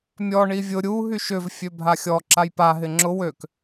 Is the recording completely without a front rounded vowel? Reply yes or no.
no